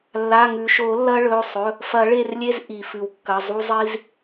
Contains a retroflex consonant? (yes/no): yes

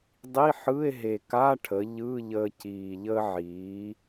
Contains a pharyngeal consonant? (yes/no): yes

